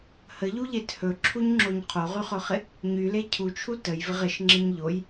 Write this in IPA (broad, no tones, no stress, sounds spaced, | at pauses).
h ə ʎ u ʎ e t h ɵ ǁʰ u ɲ ŋ͡ǁ o ɲ qʰ o ʁ y χ ɵ χ ɪ | ɲ y l e cʰ u t͡ʃʰ u t ə j v ɪ ʁ ɪ ʃ ŋ͡ǁ ɪ ɲ ʎ o j